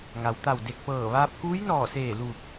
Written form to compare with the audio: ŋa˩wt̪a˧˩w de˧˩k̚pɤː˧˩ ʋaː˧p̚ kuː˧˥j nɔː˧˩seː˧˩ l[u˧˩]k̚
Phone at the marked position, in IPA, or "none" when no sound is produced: u˧˩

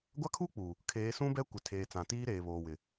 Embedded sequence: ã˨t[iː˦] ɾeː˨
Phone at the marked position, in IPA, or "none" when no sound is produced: iː˦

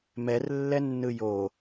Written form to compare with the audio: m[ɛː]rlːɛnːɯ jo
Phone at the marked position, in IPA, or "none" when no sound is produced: ɛ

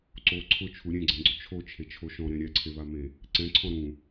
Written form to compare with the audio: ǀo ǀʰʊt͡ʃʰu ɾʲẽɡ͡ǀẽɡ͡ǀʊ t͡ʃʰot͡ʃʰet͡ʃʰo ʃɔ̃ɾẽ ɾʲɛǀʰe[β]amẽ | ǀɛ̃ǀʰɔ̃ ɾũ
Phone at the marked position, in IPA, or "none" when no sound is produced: β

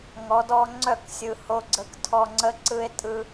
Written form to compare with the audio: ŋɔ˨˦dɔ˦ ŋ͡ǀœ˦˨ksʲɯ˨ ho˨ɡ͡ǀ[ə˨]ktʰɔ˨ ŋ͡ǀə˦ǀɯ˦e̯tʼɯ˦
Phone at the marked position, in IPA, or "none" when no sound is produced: ə˨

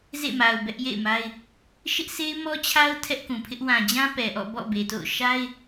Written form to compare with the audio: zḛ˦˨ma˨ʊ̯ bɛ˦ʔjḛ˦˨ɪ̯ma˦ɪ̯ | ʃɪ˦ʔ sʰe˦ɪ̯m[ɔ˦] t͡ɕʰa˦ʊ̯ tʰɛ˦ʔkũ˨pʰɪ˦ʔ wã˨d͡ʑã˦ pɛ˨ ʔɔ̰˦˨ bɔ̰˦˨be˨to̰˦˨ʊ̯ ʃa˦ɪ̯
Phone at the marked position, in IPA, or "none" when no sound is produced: ɔ˦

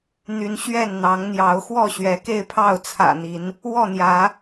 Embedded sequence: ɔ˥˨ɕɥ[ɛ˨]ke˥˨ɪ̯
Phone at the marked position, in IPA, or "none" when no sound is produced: ɛ˨˦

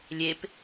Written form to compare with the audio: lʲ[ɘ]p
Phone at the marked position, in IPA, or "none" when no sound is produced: e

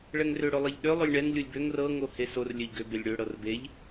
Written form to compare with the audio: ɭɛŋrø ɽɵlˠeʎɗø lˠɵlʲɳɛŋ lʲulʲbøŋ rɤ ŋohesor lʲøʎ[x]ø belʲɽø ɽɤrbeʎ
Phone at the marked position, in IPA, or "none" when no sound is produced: ɡ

